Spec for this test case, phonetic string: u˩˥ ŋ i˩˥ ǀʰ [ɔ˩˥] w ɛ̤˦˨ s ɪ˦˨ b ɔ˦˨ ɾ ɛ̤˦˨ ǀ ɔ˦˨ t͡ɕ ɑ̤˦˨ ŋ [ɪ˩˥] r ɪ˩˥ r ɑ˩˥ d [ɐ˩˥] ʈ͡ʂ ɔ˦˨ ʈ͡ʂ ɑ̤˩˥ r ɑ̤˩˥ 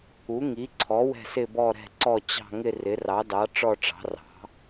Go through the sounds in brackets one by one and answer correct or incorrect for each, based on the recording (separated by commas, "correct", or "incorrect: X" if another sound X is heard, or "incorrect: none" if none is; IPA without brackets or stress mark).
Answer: correct, incorrect: ɪ˦˨, incorrect: ɑ˩˥